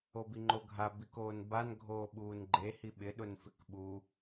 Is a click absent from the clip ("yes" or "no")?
no